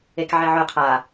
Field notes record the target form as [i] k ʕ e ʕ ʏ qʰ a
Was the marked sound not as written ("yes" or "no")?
yes